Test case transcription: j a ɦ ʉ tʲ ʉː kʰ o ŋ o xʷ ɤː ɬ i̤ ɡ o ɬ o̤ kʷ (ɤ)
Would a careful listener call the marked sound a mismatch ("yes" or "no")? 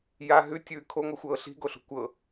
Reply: no